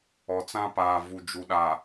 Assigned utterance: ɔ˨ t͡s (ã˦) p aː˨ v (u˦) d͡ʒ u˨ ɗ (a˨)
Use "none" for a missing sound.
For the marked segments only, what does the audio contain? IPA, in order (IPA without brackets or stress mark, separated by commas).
ã˦, u˨, a˨